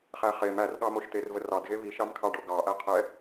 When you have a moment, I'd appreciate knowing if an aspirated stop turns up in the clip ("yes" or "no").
yes